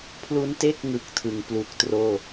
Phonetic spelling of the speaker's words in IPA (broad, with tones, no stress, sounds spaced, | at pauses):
pʰ l u˦˥ n t e˥˩ k̚ ŋ ɯ˨˩ k̚ tʰ ɯ˩˦ ŋ p l u˨˩ k̚ t r oː˥˩